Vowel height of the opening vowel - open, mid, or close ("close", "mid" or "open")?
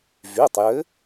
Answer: close